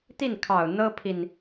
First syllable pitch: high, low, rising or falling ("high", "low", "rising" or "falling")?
falling